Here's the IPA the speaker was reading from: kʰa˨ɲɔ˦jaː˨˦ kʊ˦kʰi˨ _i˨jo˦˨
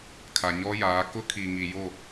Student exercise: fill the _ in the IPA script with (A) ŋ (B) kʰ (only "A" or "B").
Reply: A